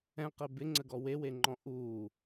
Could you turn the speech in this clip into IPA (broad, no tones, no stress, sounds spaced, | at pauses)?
ɛ̃ q e b ɪ ŋ͡ǀ ə ɡ ɔ w e w e ŋ͡ǃ ɔ̃ ʔ uː